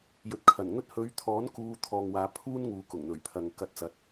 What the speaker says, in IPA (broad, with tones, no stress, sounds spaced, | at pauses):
j ɵ˨ t̚ kʰ ɐ˨˩ n ŋ ɵ˥ t̚ h ɵ˨˧ ɥ t̪ʰ ɔː˨˥ n k uː˧ t̪ʰ ɔː˨ ŋ w aː˨˧ pʰ uː˥ n ŋ uː˨˧ k ʊ˨˩ ŋ n̪ ɵ˨˩ ɥ pʰ ɐ˨ ŋ k ɐ˧ t̚ t͡s ɐ˨ t̚